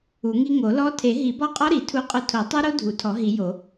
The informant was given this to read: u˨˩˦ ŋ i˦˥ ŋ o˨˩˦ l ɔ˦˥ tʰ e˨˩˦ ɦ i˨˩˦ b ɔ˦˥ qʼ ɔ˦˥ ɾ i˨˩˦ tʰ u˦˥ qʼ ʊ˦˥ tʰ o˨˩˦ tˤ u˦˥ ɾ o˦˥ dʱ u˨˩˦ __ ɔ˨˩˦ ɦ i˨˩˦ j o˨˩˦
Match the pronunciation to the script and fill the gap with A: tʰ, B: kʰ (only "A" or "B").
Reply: A